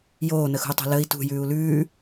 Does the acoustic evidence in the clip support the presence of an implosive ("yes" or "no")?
no